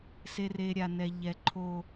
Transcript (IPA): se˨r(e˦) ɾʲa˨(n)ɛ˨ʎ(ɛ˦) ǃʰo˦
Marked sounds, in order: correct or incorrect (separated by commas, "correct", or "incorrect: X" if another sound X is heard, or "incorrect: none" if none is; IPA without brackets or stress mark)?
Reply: incorrect: e˨, correct, incorrect: ɛ˨